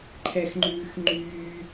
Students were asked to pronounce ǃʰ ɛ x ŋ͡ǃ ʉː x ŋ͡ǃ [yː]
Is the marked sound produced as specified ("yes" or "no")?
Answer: yes